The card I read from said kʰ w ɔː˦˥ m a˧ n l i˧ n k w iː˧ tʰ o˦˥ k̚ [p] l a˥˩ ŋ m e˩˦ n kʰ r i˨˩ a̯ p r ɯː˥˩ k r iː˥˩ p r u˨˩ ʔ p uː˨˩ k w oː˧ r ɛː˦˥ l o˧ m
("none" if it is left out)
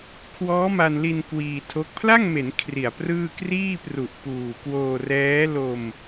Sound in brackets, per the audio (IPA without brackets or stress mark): pʰ